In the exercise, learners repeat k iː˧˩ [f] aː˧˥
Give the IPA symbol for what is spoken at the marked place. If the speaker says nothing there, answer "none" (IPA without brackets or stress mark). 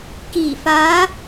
f